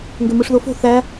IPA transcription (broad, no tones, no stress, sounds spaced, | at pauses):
ŋ ɡ ø m ɯ ʂ ð o f o̤ θ æ